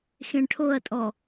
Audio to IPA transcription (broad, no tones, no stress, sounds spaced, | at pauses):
x ẽ ɳ ʈʰ o ɐ̯ tʼ ɔ